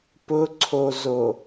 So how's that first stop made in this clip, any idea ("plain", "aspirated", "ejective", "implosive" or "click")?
plain